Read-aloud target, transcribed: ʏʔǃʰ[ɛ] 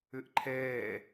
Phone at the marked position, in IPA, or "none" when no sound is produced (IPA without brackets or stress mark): ɛː